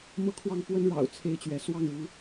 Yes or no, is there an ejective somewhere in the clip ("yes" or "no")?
no